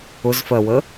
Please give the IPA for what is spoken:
ʊ z f ɜ w ə

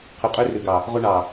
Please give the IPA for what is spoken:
qʰ ʉ˨˩ qʼ ø˦ r ʉ˨˩ ɡ ɑ˨˩ | ʁ o˦ ɳ ɑ˨˩

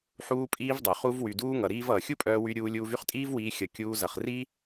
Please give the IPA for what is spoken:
ħ uː˧ pʼ iː˧ v dˤ œ˨ χ u˧ v w y˨ d uː˧ ŋ ʌ˨ ɾ iː˧ v ʌː˨ xʲ u˦ pʼ œː˧ w y˧ ɾʲ uː˧ lʲ uː˧ v y˦ χ tʼ iː˦ v w iː˧ xʲ ʌ˧ kʲ uː˧ z ʌ˨ χ r i˦

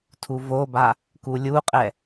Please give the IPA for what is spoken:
tʰ u v o b a | k u lʲ u qʼ ɛ

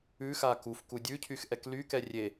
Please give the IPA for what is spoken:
ʉ x a k u f k u dʲ ʉ cʰ y x ʔ ɛ k l y k ɛ rʲ e

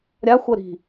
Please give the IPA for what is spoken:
ɾʲ a xʷ ə ɾ i̤

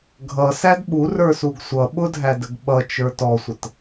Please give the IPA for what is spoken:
ɡʱ ʌ s æ d ɓ u r ə˞ s u ɡ sʷ ʌ ɓ ʊ dʱ æ d ə ɡ ɓ ʌ t͡ʃ ə˞ t ɔ sʷ ə t

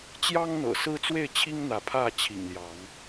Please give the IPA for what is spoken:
t͡ɕ j ɑ˦ ŋ n̪ ɤ̰˨˩ s ɹ̩˦ t͡s w e˥˨ ɪ̯ t͡ɕʰ i˦ ŋ n̪ ä˨˦ pʰ ä˥˨ t͡ɕʰ ḭ˨˩ ŋ l j ɑ˨˦ ŋ

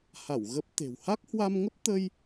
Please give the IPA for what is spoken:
h a˧˩ w ɣ ə˦˥ p̚ t̪ e̤˨˩ w h a˦˥ k̚ h w a˧ m ŋ ə˦˥ p̚ t̪ ə˧ j

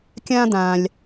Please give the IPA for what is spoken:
kʲ ãː˥ d̪ ãː˧ lʲ

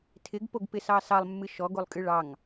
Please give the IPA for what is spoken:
tʰ ɪ ɡ p o ɡ p ɪ s ɑ s ɑ lˠ mː ɨ ʃ ɔ ɡ o lˠ kʼ ɨ ɭ ɑ ŋ

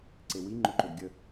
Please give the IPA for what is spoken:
ǀ e w i ŋ͡ǃ o ǃ ʏ d ɡʲ ə

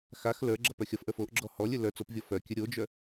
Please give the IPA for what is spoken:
x a x l ə˞ ɡ͡ǁ ʌ p œ xʲ ʌ f ʔ ə˞ f o ʔ ɡ͡ǁ ɔ h ɔ lʲ ɘ l œ t͡s o p vʲ ɔ f œ kʲ ɘ ɾʲ o d͡ʒ œ

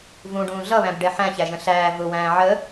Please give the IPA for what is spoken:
v ũ ɖ ũː ɮ ʌ β æ̃ b ɖ ɛ ħ æ̃ ç æ ʒ ə̃ ɬ æː v ʊ w æ̃ː ʕ ə

